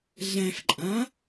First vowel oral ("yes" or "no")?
no